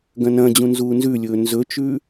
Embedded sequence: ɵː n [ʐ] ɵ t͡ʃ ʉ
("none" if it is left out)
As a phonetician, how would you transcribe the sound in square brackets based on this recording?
z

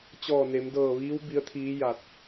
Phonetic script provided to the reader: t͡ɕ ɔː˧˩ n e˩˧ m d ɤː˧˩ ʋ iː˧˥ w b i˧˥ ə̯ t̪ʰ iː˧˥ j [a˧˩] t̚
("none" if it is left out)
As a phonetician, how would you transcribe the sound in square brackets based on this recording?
a˧˩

